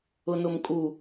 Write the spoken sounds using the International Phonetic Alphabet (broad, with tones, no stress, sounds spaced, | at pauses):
ʊ˨ n ʊ˨ m kʼ u˨